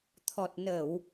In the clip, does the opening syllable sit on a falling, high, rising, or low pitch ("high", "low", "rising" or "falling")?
low